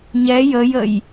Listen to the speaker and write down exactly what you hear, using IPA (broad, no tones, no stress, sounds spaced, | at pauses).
ɲ ɛ j ə j ə j